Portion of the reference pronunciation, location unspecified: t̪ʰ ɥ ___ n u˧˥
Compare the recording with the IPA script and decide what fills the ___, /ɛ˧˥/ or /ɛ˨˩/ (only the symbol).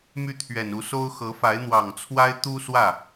ɛ˨˩